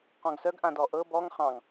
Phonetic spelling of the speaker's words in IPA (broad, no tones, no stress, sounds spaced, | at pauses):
q ɔ̃ ɡ s œ ɡ ʔ ã d ɔ ʔ ɤ b ɔ ŋ χ ɑ̃ ŋ